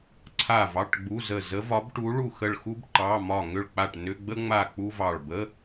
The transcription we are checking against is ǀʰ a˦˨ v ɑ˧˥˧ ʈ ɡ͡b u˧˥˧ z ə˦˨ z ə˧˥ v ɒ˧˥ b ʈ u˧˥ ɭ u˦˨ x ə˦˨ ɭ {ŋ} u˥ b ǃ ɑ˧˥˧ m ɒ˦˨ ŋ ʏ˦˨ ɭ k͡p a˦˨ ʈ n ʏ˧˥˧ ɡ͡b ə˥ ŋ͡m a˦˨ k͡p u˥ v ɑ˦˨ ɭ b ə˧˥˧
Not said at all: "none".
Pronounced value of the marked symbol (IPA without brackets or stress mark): x